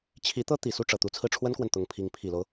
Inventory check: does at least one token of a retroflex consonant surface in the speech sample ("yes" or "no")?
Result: yes